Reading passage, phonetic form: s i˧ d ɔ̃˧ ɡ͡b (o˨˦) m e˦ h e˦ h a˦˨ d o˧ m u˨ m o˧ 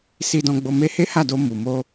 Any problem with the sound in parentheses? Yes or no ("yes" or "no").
yes